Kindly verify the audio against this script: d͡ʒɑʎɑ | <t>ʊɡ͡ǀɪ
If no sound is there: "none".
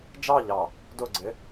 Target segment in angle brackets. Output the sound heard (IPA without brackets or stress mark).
d